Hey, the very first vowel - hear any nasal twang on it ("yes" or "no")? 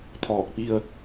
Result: no